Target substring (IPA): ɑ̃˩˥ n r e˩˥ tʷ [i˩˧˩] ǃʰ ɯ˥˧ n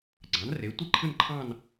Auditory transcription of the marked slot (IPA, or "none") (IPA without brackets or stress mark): i˥˧